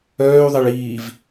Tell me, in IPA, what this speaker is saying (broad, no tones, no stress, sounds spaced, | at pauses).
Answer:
œː y̯ ðˤ e ɭ iː v